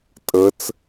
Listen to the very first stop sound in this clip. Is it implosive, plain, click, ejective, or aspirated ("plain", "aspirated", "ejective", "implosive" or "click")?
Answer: ejective